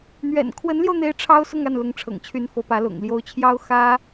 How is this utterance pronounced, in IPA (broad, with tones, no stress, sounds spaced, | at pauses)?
n̪ ɥ ɛ̰˨˩ n kʰ w ə˧˥ n l j o˧ ʊ̯ n̪ e˥ ɪ̯ ʈ͡ʂʰ ɑ˥ ʊ̯ s ʊ˥˧ ŋ a˥˩ n l ʊ˧˥ ŋ ʈ͡ʂʰ ɤ̰˨˩ ŋ t͡ɕʰ y˧˥ n f ɤ˧˥ p ä˧˥ l ʊ̰˨˩ ŋ l j o˧˥ ʊ̯ t͡ɕʰ j ɑ˥ ʊ̯ x ä˥